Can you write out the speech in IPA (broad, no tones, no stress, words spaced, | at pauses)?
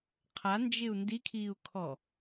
qʰand͡ʒɪu̯ ndikʰiːu̯kʰɔ